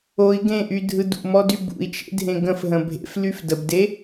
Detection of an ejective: absent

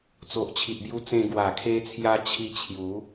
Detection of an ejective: absent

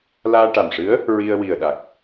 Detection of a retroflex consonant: present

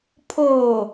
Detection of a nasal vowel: absent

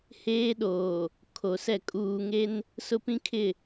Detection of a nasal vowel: present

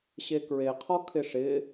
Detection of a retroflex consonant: present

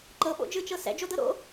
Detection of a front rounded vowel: absent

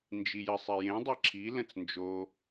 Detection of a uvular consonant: absent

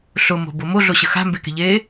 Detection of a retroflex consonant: absent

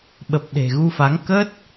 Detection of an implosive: present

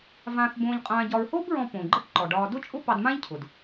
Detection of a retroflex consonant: present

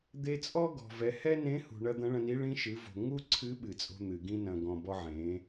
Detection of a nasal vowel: present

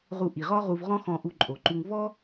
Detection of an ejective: present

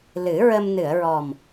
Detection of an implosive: absent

